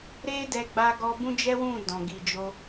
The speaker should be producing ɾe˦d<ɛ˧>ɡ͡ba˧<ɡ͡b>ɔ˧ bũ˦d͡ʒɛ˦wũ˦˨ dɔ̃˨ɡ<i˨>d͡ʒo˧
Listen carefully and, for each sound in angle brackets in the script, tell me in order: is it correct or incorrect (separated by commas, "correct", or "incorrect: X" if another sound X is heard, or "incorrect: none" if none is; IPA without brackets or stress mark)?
correct, incorrect: ɡ, correct